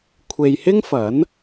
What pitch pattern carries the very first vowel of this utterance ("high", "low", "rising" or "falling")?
low